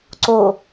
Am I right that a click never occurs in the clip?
no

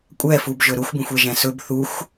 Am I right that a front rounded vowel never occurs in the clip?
yes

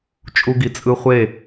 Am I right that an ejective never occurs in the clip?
no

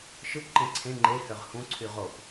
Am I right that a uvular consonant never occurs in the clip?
no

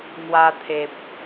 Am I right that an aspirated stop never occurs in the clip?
no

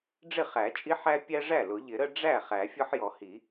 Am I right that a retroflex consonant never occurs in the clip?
no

